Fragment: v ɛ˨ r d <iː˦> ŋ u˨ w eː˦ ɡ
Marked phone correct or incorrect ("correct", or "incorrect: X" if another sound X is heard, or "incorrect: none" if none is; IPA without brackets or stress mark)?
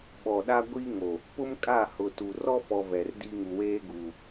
incorrect: i˦